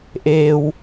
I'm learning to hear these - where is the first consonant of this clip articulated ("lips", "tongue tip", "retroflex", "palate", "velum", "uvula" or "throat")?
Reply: throat